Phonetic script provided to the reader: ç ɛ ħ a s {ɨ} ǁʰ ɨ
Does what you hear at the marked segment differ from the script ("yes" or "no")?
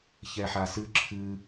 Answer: no